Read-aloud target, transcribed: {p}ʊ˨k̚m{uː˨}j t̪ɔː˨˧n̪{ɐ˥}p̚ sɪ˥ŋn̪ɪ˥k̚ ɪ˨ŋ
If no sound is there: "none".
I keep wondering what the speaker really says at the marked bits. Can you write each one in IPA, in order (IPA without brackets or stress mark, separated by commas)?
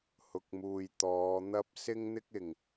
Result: h, uː˨, ɐ˥